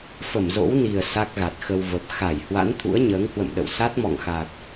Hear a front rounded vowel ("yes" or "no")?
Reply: no